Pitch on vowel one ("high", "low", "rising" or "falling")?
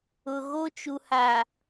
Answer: low